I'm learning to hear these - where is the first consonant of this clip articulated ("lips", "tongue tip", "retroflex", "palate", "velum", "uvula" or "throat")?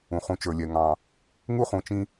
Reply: uvula